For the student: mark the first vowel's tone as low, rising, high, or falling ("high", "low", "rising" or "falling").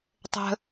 low